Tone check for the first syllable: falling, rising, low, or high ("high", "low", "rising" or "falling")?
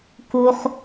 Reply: high